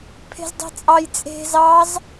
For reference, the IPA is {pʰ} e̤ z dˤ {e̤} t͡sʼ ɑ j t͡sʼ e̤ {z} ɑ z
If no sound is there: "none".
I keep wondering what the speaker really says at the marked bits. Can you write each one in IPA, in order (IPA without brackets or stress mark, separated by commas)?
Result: pʰ, e̤, z